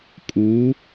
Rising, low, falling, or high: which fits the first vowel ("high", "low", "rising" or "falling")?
rising